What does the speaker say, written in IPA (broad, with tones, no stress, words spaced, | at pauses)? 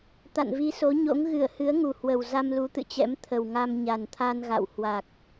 t̪a̰˧˨nvi˨˦so˨˦ ɲo̰˧˥ŋɣɨ˧˩ə̯ hɨ˨˦ə̯ŋu˨˩hwə˨˩w za˧mlu˨˦t̪ɨ̰˧˨t͡ɕɛ̰˧˥m t̪ʰə˨˩wŋa˧m ɲa˨˩nt̪ʰa˧nɣa̰˧˨w hwa˨˩k̚